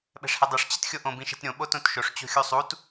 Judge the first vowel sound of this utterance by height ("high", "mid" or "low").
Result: mid